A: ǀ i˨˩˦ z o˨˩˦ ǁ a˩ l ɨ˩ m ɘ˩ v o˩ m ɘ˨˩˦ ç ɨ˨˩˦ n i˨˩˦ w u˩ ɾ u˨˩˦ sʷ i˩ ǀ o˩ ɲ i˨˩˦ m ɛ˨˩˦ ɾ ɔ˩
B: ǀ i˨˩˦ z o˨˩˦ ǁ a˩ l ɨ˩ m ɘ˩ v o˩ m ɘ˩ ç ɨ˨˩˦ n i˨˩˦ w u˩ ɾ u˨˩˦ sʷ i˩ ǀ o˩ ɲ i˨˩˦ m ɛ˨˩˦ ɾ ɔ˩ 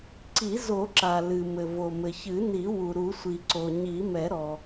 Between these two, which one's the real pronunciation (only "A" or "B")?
B